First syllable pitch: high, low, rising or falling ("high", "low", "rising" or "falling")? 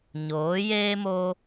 rising